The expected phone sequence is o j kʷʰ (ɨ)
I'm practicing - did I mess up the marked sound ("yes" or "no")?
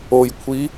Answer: yes